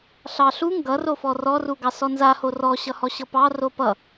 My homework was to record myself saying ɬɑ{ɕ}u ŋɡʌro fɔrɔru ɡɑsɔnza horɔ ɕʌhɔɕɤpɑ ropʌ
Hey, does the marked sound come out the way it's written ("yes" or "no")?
no